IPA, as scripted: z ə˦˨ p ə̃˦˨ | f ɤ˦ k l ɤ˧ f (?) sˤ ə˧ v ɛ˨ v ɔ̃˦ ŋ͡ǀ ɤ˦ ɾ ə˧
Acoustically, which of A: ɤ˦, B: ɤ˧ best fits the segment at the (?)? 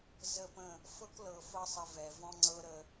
A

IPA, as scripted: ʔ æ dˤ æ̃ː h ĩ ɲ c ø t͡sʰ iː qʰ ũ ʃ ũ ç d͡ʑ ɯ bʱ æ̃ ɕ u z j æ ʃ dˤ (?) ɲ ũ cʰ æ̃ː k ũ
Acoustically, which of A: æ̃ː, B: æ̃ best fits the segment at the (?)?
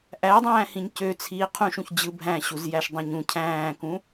B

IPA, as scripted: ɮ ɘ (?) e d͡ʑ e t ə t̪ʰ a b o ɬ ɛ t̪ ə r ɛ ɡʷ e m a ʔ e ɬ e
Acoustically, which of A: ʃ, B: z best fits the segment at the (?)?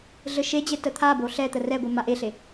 A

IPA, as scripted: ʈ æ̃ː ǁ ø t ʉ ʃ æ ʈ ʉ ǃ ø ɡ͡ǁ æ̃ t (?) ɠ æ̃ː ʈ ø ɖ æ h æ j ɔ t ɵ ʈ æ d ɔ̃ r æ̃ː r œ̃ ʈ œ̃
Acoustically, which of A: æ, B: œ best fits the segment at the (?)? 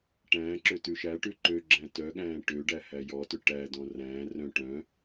B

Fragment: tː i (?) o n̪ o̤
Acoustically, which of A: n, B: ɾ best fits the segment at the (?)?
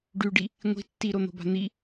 B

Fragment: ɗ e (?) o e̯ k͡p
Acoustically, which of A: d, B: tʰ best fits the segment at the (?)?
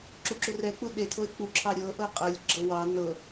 B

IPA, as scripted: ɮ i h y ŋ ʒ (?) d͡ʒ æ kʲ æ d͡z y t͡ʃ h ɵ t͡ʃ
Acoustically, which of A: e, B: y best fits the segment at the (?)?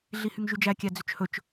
B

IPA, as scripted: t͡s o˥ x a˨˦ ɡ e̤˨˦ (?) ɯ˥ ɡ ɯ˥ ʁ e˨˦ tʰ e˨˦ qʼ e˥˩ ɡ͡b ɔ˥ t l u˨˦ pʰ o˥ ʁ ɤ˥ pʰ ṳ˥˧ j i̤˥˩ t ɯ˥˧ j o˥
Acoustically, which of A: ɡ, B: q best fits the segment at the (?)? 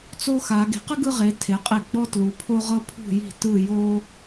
B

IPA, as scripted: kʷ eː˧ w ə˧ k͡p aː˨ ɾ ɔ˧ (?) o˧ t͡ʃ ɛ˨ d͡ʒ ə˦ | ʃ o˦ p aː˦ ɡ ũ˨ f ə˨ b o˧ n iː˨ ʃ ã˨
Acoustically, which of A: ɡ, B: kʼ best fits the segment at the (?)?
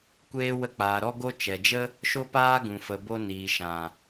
A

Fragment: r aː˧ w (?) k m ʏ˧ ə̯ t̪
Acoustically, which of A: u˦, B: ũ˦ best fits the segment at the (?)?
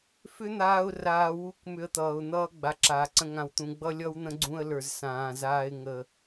A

